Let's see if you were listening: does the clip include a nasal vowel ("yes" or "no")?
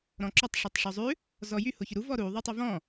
yes